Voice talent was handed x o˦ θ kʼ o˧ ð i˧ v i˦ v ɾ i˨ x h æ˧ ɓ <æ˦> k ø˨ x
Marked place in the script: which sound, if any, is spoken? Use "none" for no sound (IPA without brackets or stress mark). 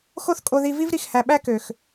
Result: æ˦